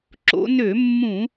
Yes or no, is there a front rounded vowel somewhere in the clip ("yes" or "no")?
yes